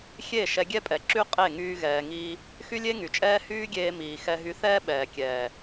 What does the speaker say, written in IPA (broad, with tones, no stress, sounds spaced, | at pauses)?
xʲ e˦˨ ʃ ɛ˧ ɡʲ ɛ˦ pʼ ɛ˨ ǁ y˦ qʼ e˦˨ ŋ yː˦ ɣ ɛː˧ ŋ iː˦ | x y˦ lʲ e˦ ŋ y˨ t͡ʃʼ ɛː˦ h yː˦ ɡʲ eː˧ m iː˨ x ɛ˧ ɦ y˧ θ ɛː˦ ɓ ɛː˨ kʲ ɛː˨